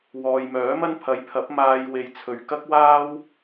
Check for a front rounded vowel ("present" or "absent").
present